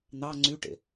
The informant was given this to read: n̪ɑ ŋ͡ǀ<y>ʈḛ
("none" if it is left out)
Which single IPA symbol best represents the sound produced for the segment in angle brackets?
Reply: y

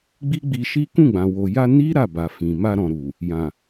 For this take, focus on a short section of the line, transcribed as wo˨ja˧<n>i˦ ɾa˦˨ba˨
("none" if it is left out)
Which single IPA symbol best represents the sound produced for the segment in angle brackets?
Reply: n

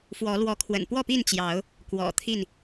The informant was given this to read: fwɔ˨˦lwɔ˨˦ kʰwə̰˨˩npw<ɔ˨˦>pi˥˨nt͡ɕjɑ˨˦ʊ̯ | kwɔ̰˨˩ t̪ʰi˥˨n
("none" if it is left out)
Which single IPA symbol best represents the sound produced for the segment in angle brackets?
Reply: ɔ˥˨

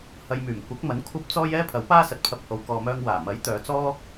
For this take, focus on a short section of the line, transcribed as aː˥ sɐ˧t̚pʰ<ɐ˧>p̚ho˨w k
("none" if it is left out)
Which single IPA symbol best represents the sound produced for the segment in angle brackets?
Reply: ɐ˧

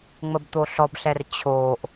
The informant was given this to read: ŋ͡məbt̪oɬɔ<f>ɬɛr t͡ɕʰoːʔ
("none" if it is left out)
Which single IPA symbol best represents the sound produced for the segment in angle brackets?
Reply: b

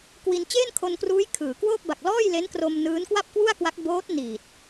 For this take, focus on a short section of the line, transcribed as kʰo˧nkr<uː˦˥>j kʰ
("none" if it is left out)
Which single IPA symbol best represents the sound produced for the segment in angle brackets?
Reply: uː˦˥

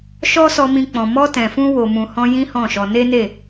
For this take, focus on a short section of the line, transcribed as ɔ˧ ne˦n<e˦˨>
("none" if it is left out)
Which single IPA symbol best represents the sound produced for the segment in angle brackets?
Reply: e˦˨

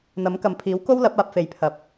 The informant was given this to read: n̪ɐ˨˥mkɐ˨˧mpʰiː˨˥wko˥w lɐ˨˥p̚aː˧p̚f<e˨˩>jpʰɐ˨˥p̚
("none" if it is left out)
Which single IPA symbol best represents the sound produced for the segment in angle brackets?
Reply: e˨˧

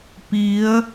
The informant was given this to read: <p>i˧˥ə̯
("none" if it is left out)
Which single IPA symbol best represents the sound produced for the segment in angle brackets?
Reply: p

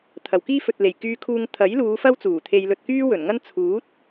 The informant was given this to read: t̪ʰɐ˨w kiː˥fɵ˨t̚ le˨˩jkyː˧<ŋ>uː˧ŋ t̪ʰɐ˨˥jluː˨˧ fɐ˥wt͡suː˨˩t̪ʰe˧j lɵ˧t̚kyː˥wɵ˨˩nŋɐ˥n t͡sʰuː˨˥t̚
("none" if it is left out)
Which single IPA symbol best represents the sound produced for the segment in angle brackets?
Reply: kʰ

